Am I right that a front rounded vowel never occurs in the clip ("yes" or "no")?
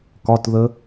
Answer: yes